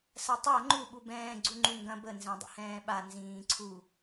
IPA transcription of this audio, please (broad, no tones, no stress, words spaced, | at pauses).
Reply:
sɐtˤa ŋ͡ǃu ɓubɛ̃ː ɡ͡ǀuŋ͡ǃuŋɡɐ̃ bə nzɛ̃dˤə̰hɛ̃ːɓa nzĩːǀʰu